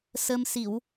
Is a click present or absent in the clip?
absent